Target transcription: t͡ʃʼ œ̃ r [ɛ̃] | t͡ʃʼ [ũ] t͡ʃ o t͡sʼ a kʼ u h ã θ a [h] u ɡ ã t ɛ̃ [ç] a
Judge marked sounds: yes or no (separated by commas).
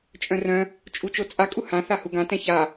no, no, yes, yes